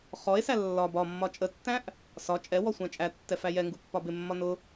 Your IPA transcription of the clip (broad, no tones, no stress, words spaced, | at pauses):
χɔe̯sæ lːɒ bɒ mːɒt͡ʃʼətːæ̃ʔ | sɒ t͡ʃʼɛwɔ sʷæ̃t͡ʃʼætːɛ fæjɛŋɡu pːɒbɪmːɒ nʊ